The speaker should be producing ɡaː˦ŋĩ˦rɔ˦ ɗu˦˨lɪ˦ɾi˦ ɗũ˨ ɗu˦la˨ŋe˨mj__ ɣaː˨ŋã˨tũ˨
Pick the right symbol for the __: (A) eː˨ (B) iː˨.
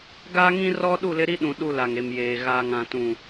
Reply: A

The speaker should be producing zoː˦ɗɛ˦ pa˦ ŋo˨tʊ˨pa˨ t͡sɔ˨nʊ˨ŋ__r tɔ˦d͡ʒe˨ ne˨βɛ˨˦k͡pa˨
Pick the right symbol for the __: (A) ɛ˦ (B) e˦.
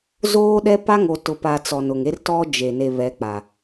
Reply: B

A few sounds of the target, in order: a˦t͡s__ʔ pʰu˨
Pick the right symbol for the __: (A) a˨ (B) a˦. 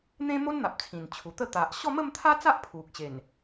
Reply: B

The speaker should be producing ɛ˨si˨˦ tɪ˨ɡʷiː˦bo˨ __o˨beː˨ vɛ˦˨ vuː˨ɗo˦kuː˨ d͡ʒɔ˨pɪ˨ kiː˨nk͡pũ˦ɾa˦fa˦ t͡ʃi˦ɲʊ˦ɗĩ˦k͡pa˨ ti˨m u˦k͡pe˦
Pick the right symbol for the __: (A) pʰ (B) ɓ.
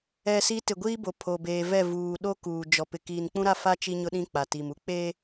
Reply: A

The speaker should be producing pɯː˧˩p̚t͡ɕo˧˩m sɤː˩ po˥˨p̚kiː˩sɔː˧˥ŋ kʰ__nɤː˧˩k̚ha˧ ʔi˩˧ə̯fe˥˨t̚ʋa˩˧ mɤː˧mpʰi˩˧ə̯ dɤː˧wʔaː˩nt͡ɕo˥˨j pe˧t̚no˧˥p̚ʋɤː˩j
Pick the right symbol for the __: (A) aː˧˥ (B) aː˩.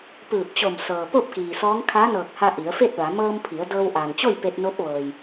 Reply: A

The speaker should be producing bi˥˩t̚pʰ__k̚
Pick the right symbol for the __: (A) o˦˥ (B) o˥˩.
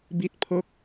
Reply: B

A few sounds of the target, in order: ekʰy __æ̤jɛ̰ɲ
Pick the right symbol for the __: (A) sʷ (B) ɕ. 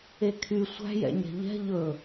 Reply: A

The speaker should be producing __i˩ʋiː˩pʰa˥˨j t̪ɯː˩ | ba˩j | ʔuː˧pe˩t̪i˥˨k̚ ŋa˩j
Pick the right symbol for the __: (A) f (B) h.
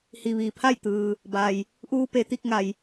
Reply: B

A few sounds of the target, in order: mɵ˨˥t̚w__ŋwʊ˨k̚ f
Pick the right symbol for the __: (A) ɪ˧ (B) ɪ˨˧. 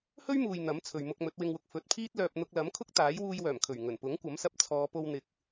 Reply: A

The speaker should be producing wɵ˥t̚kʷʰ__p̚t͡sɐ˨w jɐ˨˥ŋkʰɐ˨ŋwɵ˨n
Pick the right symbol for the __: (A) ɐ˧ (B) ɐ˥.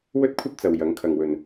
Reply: B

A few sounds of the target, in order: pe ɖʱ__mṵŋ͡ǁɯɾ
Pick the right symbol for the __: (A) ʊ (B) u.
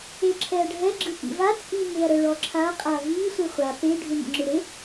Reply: B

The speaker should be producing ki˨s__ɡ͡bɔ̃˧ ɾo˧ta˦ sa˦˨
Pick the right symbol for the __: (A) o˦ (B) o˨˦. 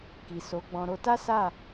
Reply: B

